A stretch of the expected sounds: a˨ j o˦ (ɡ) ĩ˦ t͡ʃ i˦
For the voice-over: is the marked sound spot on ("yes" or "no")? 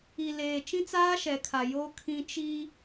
no